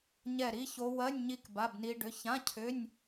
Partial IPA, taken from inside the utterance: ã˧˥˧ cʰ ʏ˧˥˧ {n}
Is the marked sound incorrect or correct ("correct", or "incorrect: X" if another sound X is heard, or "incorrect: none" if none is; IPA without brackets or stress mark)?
incorrect: nʲ